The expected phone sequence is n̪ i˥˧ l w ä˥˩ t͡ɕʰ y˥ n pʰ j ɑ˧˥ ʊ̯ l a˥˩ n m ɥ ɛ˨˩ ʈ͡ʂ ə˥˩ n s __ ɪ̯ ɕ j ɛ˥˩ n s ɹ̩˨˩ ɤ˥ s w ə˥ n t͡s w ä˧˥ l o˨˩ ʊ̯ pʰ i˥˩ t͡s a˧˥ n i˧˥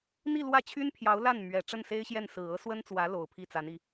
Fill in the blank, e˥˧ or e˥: e˥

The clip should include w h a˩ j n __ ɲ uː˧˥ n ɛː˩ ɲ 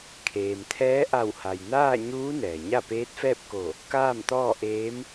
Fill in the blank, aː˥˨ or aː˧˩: aː˥˨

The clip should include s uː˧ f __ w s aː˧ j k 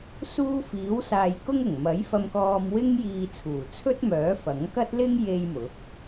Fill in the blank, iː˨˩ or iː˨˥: iː˨˥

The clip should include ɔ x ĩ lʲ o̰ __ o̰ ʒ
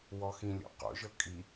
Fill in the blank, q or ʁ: q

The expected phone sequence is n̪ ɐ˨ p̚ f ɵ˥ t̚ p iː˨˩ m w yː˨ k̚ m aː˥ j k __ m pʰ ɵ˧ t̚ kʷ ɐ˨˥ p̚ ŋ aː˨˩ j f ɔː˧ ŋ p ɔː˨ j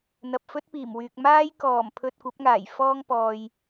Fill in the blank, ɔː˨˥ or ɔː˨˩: ɔː˨˩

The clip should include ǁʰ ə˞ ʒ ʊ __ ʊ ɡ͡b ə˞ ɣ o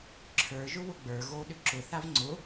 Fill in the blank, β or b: β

